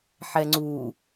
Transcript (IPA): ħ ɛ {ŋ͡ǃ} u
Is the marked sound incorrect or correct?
incorrect: ŋ͡ǀ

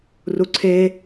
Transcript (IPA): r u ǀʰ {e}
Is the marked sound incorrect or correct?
correct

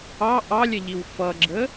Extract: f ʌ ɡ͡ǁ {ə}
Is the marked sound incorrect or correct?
correct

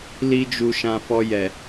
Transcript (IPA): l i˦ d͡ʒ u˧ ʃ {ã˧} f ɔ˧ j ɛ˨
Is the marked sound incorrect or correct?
correct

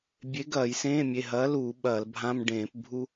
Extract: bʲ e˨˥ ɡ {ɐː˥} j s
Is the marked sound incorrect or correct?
incorrect: ɐː˧˩˧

